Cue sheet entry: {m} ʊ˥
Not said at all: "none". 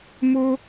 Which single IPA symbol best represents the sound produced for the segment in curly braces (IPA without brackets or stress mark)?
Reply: m